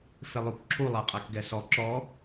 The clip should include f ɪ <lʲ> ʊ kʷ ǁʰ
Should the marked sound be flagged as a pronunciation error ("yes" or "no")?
yes